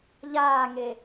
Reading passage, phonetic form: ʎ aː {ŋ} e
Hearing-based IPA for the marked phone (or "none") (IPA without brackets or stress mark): ŋ